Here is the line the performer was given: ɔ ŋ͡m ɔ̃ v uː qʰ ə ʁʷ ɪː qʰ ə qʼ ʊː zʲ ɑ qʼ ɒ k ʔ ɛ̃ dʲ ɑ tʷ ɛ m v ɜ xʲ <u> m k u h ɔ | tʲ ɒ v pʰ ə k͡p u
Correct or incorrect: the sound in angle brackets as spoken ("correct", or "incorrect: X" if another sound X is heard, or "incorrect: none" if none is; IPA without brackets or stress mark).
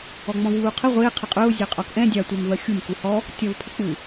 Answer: correct